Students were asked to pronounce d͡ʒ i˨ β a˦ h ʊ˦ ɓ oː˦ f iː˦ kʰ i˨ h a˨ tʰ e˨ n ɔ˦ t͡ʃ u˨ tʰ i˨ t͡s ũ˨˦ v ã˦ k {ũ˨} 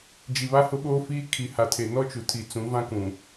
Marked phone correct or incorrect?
correct